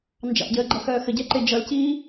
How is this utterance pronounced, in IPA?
n d͡ʒ ɑ̰ ɟ əː ɡ͡ǃ ʌ x œː x ə ɟ ɛ ǃ e d͡ʒ ʌ l c iː

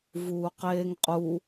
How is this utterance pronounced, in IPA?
v uː q eː ŋ qʼ u

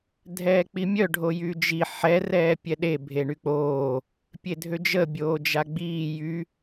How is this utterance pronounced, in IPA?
dʱ ɛː k͡p i mʲ œ ɖʱ o j y d͡ʒ i ħ ɛ r ɛː pʲ ɛ ɗ e bʱ e ɳ y k͡p oː | pʲ e dʱ ø d͡ʒ ə bʲ oː d͡ʒ a ɡ͡b iː j y

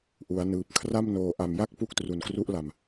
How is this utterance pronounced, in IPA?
ʔ u˩˦ a̯ n ɯː˨˩ p̚ kʰ r a˥˩ m n oː˨˩ ʔ a˨˩ m j a˥˩ k̚ p u˥˩ k̚ t r u˨˩ n k r u˦˥ ʔ l a˨˩ m

